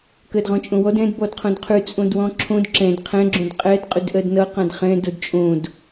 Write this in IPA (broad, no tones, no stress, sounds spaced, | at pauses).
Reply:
k ɜ d ʁ ɔ̃ t͡ʃʼ õ w ɔ d ɛ̃ d b ɔ d qʰ õ d qʰ ʉ t͡sʼ õ d w ɔ̃ ǁʰ õ d ǁ ɛ̃ d qʰ ɛ̃ ɡ͡ǁ õ d qʼ ɛ d qʼ ʉ d ʔ ɜ d n ʌ q ã d χ ɛ̃ d o d t͡ʃʼ õ d